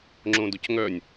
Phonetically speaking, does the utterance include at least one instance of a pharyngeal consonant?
no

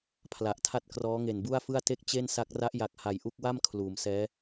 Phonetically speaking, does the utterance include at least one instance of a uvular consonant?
no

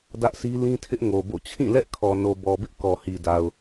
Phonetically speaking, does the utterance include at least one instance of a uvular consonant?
no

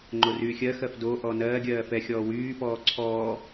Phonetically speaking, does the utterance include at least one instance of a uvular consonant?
no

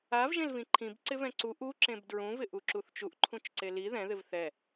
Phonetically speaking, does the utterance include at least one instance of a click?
yes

